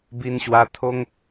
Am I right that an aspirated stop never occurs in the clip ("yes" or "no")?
no